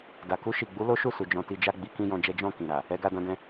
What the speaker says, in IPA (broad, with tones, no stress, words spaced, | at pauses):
da˨ku˧ʃi˨ɡ͡bu˨˦ lo˦ʃu˦˨su˨ d͡ʒɔ̃˧ti˧d͡ʒa˦ ɡ͡bi˧kĩ˦jɔ̃˧d͡ʒɛ˦ d͡ʒɔ̃˦˨ kĩ˨ɾa˨ | ɛ˧ɡa˧dã˧dɛ̃˧